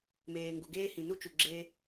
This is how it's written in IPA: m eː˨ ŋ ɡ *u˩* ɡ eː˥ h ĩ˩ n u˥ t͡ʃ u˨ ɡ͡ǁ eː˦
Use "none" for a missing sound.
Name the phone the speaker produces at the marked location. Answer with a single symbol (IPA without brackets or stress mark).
u˩